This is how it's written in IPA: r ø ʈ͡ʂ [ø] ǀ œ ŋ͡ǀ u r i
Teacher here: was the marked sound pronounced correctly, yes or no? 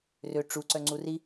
no